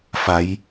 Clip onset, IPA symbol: f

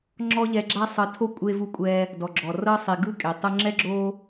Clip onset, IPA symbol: ŋ͡ǁ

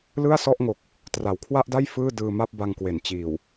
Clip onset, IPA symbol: l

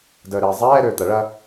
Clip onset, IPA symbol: d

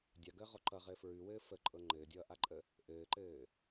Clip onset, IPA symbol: dʲ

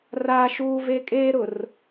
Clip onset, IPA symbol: r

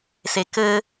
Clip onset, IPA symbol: s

